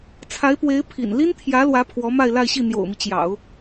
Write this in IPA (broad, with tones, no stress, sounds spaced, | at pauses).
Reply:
t͡sʰ a˧˥ ɪ̯ p w e˧˥ ɪ̯ pʰ ḭ˨˩ n l i˥ n t̪ʰ j ä˧˥ l w ä˧˥ pʰ w ɔ˧˥ m a˥˧ ɪ̯ l a˥˧ ɪ̯ ɕ i˥˩ n̪ j o̰˨˩ ʊ̯ m i˦ t͡ɕ j ɑ̰˨˩˦ ʊ̯